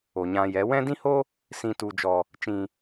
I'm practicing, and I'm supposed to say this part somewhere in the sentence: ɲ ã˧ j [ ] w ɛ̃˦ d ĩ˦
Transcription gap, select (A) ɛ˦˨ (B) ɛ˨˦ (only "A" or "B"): B